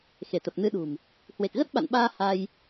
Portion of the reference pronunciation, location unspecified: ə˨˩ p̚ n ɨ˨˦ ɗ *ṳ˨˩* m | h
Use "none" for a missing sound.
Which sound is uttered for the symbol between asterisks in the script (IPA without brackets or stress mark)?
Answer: ṳ˨˩